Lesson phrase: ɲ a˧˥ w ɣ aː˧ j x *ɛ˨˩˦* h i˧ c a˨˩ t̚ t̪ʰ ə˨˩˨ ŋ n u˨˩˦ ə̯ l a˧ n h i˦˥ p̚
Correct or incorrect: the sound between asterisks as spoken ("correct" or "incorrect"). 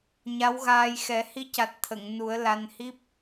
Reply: correct